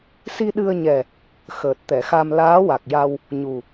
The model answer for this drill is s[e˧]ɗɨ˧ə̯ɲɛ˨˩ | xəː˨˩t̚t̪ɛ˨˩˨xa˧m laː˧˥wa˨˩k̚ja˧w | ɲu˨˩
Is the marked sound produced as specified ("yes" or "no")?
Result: no